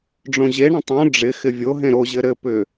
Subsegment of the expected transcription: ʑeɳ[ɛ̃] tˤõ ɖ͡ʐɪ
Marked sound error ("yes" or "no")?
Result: yes